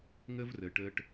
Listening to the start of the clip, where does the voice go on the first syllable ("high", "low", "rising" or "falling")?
high